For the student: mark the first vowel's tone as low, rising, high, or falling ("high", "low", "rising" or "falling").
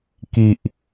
low